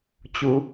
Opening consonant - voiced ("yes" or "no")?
no